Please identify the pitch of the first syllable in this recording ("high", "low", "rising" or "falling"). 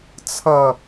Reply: low